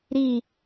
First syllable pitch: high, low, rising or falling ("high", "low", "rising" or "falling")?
falling